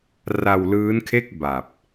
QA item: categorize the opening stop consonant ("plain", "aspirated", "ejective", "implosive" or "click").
aspirated